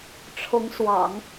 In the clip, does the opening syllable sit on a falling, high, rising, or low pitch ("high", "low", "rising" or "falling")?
rising